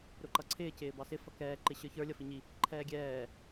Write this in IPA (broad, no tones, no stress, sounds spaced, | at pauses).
ɾ ʊ ǃ ʌ ǀʰ ɪː c ɪː b ɑ s ɪ f ʌ k ɛː ǃ ɪ ɕ ə˞ ç ə˞ lʲ ʌ f i ɲ i | ǃʰ ɛː ɡʲ ɛː